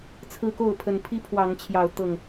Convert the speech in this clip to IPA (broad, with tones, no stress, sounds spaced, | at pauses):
t͡sʰ ɹ̩˦ k o˥˨ ʊ̯ pʰ ə˨˩ n pʰ i˦ pʰ w ɑ˨˦ ŋ t͡ɕʰ j ɑ˨˦ ʊ̯ t̪ ɤ˨˩ ŋ